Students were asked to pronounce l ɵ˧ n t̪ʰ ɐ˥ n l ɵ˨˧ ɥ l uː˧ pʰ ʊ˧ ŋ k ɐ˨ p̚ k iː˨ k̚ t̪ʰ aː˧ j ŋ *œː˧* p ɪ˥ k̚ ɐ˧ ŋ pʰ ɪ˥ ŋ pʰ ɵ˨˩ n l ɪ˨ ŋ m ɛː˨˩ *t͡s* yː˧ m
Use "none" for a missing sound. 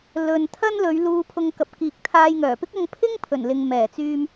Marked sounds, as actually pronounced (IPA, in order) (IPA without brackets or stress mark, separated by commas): œː˨˩, t͡s